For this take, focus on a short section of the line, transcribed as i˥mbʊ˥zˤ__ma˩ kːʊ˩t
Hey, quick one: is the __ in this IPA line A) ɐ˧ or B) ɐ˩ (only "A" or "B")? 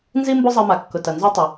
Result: A